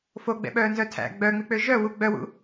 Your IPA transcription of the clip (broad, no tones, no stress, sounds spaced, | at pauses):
f o ɡ͡b ɛ̰ ɓ œː n z œ tʰ æ̰ ɡ͡b œ ŋ͡m i k͡p ø ʒ œ w u ɡ͡b œ w ṵ